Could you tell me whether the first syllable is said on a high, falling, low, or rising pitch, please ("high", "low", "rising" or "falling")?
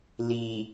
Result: low